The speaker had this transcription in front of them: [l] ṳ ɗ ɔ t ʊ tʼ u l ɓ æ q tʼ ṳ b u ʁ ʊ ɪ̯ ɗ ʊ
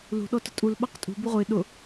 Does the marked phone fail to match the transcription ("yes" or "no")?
no